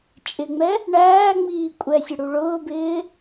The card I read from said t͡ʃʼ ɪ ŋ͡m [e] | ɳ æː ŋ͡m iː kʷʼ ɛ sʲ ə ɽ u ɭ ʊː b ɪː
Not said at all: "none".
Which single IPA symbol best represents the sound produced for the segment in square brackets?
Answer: ɛ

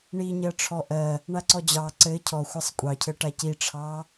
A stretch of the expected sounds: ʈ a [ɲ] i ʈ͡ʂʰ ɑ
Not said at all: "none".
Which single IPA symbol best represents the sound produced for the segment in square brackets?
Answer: c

